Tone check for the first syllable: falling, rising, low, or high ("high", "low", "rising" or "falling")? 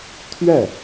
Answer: falling